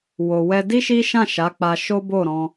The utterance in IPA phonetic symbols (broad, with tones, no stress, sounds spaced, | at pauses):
w o˨ w ɛ˧ d i˦ ʃ i˦ ʃ ã˦˨ ʃ a˨˦ k͡p a˧ ʃ o˦ b o˦˨ ɾ ɔ̃˧